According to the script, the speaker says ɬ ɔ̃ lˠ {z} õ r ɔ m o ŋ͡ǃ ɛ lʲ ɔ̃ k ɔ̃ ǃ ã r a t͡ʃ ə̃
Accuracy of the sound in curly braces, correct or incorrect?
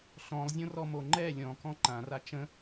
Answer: incorrect